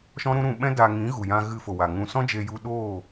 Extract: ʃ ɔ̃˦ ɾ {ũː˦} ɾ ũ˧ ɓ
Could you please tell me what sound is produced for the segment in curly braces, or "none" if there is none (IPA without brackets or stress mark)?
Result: ũ˦